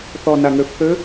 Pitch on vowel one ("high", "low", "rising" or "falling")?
low